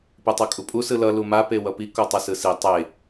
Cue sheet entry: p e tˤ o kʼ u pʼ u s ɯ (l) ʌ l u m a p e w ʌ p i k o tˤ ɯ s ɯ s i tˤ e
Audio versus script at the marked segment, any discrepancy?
no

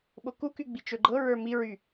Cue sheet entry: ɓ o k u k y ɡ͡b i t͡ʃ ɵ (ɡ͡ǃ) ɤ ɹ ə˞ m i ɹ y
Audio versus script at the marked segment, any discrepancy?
no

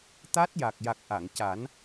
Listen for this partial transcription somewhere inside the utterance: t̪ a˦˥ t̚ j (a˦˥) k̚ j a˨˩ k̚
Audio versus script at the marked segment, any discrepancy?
yes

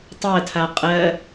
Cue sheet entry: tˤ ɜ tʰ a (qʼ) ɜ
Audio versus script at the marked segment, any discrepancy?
no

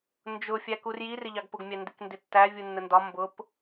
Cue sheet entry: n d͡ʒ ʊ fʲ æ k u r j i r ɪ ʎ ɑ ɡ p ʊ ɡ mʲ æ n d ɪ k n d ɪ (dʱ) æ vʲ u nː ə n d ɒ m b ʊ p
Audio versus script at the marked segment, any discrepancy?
yes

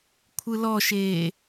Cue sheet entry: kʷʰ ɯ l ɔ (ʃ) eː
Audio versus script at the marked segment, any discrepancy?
no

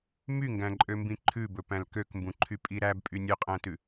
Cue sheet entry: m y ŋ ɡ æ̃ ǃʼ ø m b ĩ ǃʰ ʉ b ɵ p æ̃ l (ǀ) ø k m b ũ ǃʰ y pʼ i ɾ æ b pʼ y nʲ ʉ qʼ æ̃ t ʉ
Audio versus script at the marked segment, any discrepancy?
yes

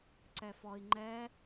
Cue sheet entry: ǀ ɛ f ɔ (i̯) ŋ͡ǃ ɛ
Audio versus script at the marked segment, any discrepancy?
no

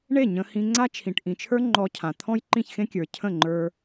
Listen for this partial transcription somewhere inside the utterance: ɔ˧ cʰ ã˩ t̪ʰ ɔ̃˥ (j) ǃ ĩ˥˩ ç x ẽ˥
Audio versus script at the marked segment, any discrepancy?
no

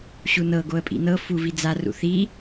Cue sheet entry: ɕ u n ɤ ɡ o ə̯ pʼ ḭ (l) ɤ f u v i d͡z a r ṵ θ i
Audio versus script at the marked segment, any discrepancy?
yes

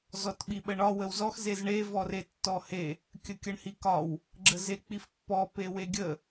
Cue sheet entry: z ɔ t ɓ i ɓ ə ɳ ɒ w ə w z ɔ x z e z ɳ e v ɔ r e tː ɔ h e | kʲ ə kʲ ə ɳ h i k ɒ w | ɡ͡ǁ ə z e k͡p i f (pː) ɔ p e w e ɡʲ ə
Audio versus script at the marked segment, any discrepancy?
no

